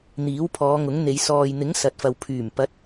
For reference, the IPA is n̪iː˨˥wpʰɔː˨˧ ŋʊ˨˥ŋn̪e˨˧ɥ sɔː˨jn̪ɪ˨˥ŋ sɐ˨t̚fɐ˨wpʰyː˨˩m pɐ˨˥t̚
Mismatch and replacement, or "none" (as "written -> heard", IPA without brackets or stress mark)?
ɥ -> j